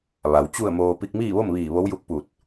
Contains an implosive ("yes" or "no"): no